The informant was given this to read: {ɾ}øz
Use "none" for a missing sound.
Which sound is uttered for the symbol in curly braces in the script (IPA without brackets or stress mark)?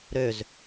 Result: ɾ